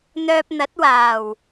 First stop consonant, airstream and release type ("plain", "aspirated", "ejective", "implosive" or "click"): plain